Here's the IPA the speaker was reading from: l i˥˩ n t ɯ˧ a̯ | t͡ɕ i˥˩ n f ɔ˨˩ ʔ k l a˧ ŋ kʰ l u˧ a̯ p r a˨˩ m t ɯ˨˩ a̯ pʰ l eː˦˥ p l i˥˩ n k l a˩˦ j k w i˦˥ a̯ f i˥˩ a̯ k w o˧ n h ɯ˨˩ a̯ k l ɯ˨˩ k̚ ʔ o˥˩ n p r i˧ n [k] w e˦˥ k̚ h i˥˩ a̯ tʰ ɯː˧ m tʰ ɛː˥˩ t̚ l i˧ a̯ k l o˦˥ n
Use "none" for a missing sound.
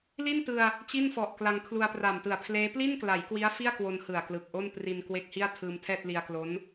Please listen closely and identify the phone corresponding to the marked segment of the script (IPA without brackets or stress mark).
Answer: k